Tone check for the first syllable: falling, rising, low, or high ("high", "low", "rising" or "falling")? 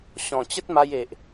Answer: low